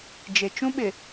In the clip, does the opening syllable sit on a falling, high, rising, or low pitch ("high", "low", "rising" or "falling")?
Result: low